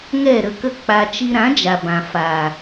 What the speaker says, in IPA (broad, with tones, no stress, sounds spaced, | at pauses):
ŋ ɛ˦˨ ɾ ə˧ k ə˦ k͡p a˧ t͡ʃ i˧ ɾ ã˨˦ d͡ʒ a˨ b ã˨ f a˨